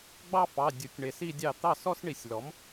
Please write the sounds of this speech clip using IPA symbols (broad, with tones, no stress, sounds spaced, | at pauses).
ɡ͡b ɑ˥ f ɑ˩˧˩ dʲ u˩˥ tʲ ɳ e˨˩˦ s i˥˧ dʲ ɑ˥˩ t̪ ɑ˥˩ s ɔ˥ s ɳ i˨˩˦ sʲ l ɔ˩˥ m